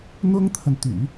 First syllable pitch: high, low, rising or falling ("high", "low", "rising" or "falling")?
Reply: high